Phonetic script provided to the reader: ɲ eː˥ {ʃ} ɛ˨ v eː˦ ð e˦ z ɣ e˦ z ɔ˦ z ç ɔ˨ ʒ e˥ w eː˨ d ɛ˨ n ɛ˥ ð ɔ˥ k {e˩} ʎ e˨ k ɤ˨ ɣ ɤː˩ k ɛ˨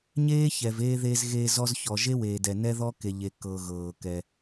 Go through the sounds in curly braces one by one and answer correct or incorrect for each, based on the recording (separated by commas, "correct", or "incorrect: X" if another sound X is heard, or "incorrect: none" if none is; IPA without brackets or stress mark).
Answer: incorrect: ç, incorrect: e˨